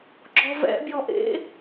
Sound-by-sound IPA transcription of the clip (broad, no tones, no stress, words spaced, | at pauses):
ɡ͡ǁɔvɛ̰ bʲɔʔḛ